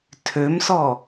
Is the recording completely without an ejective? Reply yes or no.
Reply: yes